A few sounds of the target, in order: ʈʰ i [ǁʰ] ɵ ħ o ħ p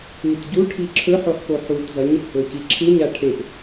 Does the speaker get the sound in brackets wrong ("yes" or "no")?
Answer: no